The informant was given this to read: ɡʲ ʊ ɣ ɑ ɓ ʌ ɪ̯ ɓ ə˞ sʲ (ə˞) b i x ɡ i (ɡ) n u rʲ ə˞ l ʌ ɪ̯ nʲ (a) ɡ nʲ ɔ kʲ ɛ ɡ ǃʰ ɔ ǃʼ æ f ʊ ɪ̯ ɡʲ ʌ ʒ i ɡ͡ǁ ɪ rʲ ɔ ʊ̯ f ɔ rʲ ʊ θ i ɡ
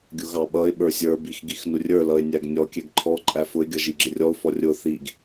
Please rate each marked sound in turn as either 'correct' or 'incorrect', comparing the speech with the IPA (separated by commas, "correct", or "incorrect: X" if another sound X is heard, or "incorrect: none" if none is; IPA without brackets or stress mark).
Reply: correct, incorrect: x, incorrect: æ